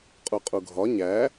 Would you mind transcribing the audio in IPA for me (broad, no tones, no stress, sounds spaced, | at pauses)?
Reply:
qʼ u qʼ u ɡʱ ɒ ɲ æ